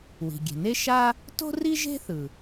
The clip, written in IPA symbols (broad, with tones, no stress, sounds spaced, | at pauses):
w i̤˩ ɡʲ e̤˩ n e˥ ʃ a˥ | t o̤˥ r i˥ ʒ e̤˥ θ ɯ˩